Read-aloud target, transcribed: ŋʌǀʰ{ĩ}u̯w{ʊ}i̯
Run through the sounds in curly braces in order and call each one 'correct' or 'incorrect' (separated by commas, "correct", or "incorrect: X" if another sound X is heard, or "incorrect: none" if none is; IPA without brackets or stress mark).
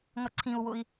correct, correct